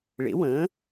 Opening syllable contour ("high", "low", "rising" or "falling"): rising